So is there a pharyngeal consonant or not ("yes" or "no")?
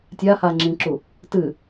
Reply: no